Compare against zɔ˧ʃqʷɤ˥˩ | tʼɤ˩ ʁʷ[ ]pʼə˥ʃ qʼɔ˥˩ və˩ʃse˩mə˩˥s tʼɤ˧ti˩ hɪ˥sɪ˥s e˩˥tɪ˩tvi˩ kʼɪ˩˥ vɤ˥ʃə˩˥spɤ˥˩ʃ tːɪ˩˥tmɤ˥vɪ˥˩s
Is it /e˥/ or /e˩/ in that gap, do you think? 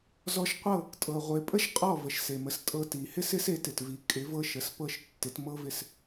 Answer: e˩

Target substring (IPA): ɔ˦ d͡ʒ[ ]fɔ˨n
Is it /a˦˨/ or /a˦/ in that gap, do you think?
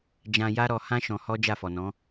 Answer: a˦˨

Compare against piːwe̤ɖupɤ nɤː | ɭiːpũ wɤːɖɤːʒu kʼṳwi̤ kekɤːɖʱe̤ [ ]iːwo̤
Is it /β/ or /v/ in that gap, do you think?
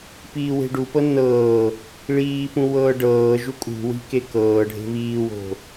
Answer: β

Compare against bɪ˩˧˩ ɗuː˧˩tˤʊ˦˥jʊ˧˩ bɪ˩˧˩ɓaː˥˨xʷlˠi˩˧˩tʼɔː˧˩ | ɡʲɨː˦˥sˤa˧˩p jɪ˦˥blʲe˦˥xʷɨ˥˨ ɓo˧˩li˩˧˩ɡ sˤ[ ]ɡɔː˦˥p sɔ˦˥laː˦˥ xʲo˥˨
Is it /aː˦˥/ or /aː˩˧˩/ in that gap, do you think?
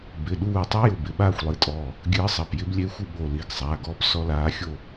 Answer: aː˩˧˩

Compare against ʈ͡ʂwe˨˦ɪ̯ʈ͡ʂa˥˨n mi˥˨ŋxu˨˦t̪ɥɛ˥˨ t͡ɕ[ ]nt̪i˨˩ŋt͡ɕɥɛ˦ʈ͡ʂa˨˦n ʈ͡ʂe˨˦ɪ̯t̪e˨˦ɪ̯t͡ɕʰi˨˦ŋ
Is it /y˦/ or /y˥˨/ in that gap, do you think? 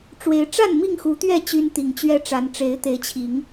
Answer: y˦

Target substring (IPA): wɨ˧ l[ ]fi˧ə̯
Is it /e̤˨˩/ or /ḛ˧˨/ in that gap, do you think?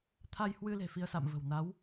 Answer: e̤˨˩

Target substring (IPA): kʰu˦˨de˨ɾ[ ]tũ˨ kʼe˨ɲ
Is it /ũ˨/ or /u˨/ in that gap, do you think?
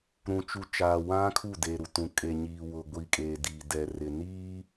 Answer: u˨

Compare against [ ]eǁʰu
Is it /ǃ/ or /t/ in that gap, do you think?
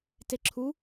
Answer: t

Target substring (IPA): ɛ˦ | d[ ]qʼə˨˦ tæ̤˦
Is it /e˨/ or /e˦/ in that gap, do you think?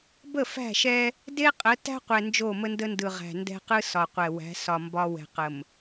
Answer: e˦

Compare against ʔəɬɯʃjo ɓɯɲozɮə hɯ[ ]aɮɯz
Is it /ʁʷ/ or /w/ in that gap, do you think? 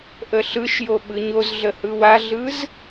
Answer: w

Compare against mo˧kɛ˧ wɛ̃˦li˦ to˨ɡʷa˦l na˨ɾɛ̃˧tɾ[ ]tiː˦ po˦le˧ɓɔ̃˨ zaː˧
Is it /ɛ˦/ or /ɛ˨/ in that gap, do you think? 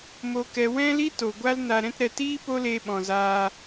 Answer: ɛ˨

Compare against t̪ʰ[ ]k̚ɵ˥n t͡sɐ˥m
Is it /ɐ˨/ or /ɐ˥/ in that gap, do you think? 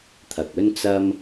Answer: ɐ˨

